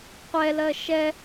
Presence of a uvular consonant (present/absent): present